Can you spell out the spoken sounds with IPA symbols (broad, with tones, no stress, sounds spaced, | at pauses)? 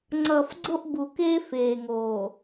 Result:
ŋ͡ǀ ʌ˨ f ɡ͡ǀ o˦ ʔ b u˨ k eː˦ f eː˨ ŋ oː˨